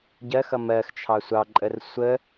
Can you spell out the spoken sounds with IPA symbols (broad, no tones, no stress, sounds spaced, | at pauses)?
ɟ ɜ x ʌ m ɜ x t͡ʃʰ ɑ sʷ ɑ ǃʼ ə r sʷ ə